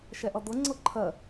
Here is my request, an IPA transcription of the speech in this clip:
ʃ ɛ ʔ ʌ d̪ ɤ ŋ͡ǀ ɤ ǃʰ ɜ

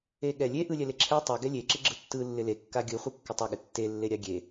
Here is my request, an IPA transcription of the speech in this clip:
e ɠ ɛ lʲ e ʔ ɯ lʲ ɛ l e ǁʰ ɛ tˤ ɛ ɡ ɛ lʲ e ǁ ɪ ɡ͡ǁ ɯ tː ɯ lː ɪ l e kː a ɡʲ ɯ χʷ ɯ kː ə tˤ ə ɠ ɪ tː e lː e ɾʲ a ɡʲ e

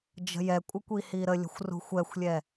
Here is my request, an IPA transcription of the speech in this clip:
d͡ʒ ə̤ j ɛ kʷʼ ə kʷ i h i ɾ ə lʲ ə̤ xʷ r ṳ xʷ ɛ xʷ lʲ ɛ

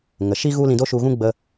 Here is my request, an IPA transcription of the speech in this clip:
ŋ ə˨ ʃ i˦ ɣ u˦ l ĩ˧ d o˦ ʃ u˧ ɣ ũ˦ ɡ͡b ə˧

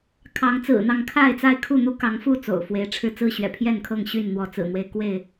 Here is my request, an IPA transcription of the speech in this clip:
kʰ ɑ˨˦ ŋ t͡s ɹ̩˨˩ n̪ ɑ˥˨ ŋ kʰ a˥˨ ɪ̯ t͡s a˥˨ ɪ̯ kʰ u˥˨ n̪ u˦ k ɑ˨˦ ŋ f u˥˨ t͡s o̰˨˩ ʊ̯ f w e˨˦ ɪ̯ ʈ͡ʂʰ ɻ̩˥˨ t͡s ɹ̩˥˨ ɕ ɥ ɛ̰˨˩ pʰ j ɛ˥˨ n kʰ ɤ˥˨ ŋ ɕ y˥˨ n n̪ w ɔ˨˦ t͡s ɹ̩˨˩ n̪ w e˦ ɪ̯ k w e˥˨ ɪ̯

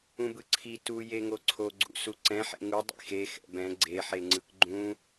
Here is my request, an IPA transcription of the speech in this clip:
ũ b ɯ ǀʰ i t u j e ŋ o ǀʰ o ɡ͡ǀ ṵ s u ǀ ɛ̃ ħ ḛ ŋ u dˤ ḭ x e x ɛ̰ b ɛ̃ ɡ͡ǀ e ħ e ŋ͡ǀ ɯ k ɡ͡ǃ ũ

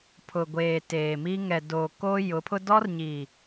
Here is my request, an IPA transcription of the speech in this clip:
pʰ ʊ˨ ɡʷ eː˨ t eː˨ m i˦ ŋ ɛ˨ d oː˨ k o˦ j ʊ˨˦ pʰ ʊ˦ d ɔ˦ r ɲ i˨

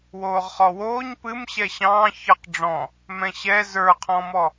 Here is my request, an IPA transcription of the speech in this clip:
w oː ʁ χ ɔ w oː ɲ p ɨ m ɕ ɛ ɕ ɑ̃ː ç ə q ɖ͡ʐ ɔ̃ | m ɛ̃ ɕ ɛ z ə˞ qʰ ɔ̃ m ɔ

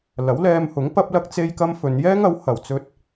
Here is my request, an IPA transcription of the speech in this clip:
l ɐ˨˥ w l ɛː˧ m h ʊ˨˥ ŋ p ɐ˥ p̚ l ɐ˥ k̚ t͡s e˥ j k ɐ˥ m f ɵ˨˧ n j ɛː˥ ŋ ɐ˨˥ w h ɐ˨˧ w t͡s ɵ˥ t̚

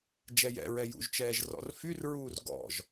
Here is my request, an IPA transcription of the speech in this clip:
d͡ʒ ɛ j ɛ̰ ɹ ɛ j ṵ ʒ t͡ʃ ɛː ʒ r ɔ̰ r f y r ɹ uː r ɡ ɔ̰ ʒ

